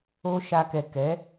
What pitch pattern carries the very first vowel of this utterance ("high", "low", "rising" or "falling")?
high